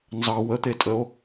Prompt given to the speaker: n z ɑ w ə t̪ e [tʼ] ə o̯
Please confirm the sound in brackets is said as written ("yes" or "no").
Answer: yes